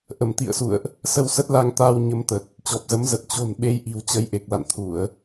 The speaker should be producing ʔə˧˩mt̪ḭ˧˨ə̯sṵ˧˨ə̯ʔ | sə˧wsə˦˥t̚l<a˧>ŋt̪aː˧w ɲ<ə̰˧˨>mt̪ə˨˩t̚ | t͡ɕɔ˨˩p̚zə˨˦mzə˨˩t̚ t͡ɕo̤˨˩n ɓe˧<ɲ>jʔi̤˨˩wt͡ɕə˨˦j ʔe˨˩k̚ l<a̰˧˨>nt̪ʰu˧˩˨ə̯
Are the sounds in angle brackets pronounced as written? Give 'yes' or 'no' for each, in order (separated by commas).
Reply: yes, no, no, yes